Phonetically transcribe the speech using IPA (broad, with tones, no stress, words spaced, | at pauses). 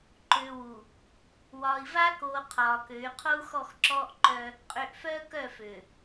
ǃøː˨ wu˨ | wɒː˨i̯va˦koː˨ qʰɒː˨kø˨˦y̯ qʰo˦u̯xɔ˦˨xǁɔː˦ʔǃœ˦ | qʼø˨ʔfœː˦ kœ˦˨fø˨